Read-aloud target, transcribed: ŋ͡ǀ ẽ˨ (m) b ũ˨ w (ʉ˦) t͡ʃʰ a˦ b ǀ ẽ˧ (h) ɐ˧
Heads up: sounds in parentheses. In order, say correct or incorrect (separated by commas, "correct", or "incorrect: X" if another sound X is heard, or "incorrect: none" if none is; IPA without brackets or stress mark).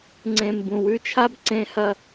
correct, correct, correct